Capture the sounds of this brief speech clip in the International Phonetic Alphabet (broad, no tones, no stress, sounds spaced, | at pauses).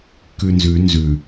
k ʉ n z ʉ n z ʉ